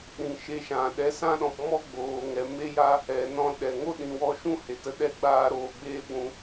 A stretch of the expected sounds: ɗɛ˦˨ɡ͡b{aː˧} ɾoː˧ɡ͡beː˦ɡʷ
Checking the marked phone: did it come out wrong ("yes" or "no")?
no